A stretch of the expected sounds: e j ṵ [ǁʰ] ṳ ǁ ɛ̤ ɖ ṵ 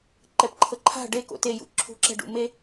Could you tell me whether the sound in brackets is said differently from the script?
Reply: no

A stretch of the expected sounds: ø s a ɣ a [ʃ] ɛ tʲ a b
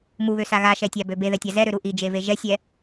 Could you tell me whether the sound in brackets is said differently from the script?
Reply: no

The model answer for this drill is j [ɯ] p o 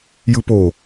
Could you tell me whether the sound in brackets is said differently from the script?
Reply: no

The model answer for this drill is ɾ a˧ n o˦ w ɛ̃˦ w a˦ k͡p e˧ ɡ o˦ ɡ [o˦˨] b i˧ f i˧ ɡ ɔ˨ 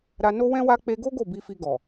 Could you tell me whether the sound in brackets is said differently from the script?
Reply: no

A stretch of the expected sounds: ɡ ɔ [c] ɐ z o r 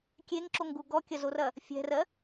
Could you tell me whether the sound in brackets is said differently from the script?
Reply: yes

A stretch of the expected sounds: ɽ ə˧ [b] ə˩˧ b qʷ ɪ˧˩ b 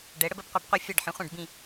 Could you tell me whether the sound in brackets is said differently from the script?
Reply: no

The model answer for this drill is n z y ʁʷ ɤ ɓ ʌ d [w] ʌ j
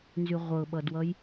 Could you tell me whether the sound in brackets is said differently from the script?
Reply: no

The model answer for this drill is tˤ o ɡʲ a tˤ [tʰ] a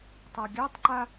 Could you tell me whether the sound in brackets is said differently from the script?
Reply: yes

